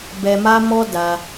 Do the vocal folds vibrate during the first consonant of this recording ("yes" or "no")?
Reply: yes